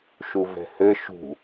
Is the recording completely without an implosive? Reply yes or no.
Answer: yes